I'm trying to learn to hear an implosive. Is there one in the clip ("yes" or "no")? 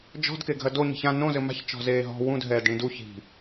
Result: no